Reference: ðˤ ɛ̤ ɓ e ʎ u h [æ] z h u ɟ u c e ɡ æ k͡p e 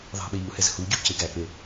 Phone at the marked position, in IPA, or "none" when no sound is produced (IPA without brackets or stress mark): ɛ